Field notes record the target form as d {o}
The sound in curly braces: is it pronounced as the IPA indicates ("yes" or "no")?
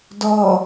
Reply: no